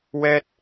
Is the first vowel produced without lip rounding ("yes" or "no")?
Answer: yes